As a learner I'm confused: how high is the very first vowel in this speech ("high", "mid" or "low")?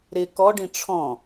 high